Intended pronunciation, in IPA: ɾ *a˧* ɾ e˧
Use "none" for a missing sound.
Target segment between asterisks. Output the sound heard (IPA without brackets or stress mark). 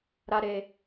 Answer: a˧